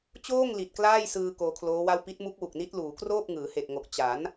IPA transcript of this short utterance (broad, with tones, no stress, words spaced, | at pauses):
t͡ɕoː˥˩ŋ li˨˩t̚ klaː˥˩jsɯː˧ koː˧kʰloː˦˥wa˥˩w pi˦˥t̚mu˦˥k̚wu˨˩k̚ni˦˥t̚ luː˩˦kroː˥˩p̚ ŋɯː˩˦he˨˩k̚ŋo˨˩k̚ t͡ɕa˩˦n